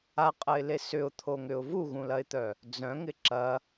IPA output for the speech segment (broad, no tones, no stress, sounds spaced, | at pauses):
a qʼ ɐ ɪ̯ l e s ʏ ʊ̯ t̪ʰ o ŋ ʏ ʊ̯ v u ɣ ũ l ɐ ɪ̯ t̪ œ | d͡z œ̃ ŋ ɪ ǁ ɐ